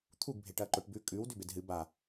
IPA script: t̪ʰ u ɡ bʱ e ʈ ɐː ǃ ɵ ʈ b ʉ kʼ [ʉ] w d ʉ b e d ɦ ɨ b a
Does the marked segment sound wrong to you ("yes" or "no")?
no